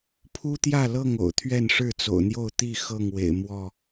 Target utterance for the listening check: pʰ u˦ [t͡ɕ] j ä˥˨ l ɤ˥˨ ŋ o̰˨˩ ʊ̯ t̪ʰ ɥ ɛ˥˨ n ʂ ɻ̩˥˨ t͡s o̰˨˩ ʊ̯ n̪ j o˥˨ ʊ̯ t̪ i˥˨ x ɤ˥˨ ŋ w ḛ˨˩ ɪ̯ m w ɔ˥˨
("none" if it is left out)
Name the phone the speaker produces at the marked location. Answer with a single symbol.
t̪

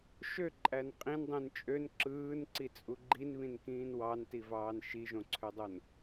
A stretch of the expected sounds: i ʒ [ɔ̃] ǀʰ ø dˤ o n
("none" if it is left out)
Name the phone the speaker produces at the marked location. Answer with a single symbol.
õ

